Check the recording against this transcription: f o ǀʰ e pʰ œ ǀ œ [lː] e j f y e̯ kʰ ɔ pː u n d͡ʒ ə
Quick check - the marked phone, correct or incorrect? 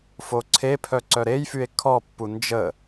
incorrect